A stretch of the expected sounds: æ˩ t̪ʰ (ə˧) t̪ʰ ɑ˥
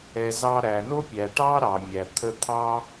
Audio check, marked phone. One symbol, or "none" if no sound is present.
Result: ə˧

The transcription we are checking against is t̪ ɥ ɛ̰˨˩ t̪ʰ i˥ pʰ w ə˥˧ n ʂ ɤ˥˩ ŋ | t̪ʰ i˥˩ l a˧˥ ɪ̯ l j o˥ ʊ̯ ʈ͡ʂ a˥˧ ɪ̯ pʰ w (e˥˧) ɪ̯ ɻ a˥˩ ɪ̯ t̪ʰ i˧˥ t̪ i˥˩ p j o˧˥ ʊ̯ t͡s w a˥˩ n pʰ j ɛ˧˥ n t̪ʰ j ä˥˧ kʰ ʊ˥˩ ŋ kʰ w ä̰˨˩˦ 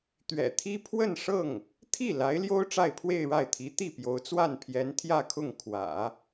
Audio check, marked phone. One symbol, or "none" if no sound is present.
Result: e˥˧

